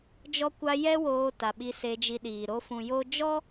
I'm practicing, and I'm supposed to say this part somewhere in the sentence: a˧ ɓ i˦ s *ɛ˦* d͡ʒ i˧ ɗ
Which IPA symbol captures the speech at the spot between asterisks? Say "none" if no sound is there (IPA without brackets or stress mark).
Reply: e˦